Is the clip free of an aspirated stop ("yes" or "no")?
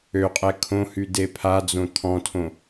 no